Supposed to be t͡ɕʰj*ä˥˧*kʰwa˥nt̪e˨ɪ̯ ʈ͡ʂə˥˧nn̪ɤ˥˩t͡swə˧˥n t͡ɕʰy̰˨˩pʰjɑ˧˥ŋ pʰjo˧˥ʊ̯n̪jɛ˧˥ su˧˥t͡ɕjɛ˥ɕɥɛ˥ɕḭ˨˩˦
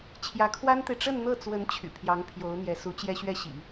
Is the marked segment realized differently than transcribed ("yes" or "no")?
yes